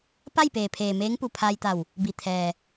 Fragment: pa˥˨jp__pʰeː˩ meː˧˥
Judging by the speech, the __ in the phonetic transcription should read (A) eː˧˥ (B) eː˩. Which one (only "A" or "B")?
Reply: B